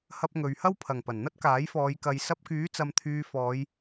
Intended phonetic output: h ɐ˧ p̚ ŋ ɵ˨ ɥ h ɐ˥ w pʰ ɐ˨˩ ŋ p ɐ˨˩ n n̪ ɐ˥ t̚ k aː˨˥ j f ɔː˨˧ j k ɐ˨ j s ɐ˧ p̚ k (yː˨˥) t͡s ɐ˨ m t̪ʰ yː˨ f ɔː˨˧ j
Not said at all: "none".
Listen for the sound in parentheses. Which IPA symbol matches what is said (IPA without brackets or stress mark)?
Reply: yː˨˥